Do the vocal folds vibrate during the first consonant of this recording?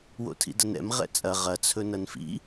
yes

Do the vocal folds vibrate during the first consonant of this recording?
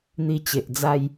yes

